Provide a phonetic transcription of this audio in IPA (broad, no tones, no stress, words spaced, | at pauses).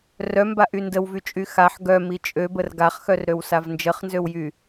rœmbaʔy ndəwvyt͡ʃʼy xaħ ɡœmi t͡ʃʼøbər ɡaχxœrɾøwsav nd͡ʒəχnzøwjy